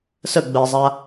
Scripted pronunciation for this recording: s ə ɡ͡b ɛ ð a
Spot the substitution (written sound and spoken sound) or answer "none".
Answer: ð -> zˤ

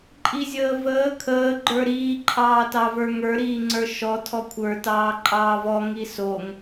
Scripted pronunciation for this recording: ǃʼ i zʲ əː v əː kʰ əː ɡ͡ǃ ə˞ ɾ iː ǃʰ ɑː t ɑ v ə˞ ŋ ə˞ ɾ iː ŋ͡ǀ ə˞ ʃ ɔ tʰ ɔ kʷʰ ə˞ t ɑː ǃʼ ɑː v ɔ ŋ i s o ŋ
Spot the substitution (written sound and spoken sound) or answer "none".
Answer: none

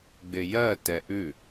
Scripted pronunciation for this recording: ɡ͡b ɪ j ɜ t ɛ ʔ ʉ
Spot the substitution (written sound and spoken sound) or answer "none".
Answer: none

